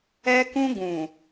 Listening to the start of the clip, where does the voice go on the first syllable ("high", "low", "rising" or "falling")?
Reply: high